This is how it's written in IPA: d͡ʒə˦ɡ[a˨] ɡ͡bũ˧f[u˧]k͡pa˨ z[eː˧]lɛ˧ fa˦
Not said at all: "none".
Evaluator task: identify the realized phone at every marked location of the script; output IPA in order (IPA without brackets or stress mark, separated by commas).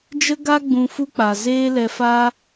a˦, u˦, eː˦